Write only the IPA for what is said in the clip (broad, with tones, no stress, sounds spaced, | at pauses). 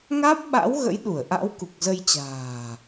ŋ aː˦˥ p̚ ɓ a̰˧˥ w ɣ ə̰˧˥ j ɗ u˧˩ ə̯ ʔ a̰˧˥ w k u˨˩ k̚ z ə˧ j t͡ɕ a̤ː˨˩